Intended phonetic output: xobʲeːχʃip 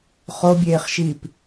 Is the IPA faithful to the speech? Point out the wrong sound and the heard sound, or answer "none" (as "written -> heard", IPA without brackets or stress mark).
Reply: x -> χ